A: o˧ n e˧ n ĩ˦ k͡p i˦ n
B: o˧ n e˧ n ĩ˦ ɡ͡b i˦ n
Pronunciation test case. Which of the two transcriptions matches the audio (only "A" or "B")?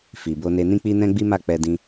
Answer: A